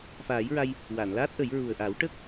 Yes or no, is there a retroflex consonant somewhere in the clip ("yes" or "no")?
yes